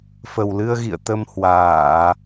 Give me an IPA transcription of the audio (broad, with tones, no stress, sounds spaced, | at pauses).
f ə˨˩ w l ɨ˧ ə̯ ɣ ḭ˧˨ ə̯ t̪ ə˧ m h w aː˧˩˨